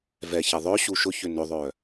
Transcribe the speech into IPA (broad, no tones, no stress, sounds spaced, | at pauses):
v ɛ ç ɛ ðˤ œ ɕ u ʃ ʊ ç ʏ n ʏ ðˤ œ